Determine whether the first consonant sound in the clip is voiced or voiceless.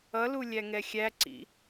voiced